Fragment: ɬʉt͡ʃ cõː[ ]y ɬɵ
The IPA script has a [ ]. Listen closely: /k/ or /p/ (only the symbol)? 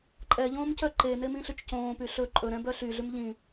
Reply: p